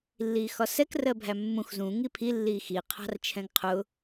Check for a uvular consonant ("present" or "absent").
present